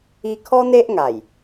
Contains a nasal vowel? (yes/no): no